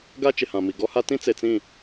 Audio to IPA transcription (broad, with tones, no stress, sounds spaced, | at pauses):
ɡ a˦ t͡ʃ ɪ˨ h ã˨ m i˨ ɡ ɔ˦ h a˦ t ĩ˦ t͡s e˨ t͡s ĩ˦˨